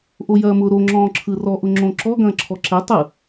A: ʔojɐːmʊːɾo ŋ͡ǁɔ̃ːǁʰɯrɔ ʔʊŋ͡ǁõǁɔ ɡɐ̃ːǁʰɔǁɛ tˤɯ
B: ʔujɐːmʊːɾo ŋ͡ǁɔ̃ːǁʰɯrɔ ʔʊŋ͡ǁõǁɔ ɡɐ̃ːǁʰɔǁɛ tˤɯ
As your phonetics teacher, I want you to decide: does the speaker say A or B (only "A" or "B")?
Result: A